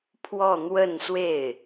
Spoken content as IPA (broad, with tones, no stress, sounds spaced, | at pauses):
pʰ w ɔ˥˧ n̪ w ə˥˧ n s w e˥˩ ɪ̯